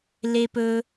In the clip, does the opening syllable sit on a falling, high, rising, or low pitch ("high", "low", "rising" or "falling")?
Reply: high